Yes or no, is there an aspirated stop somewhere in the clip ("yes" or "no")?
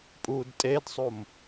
no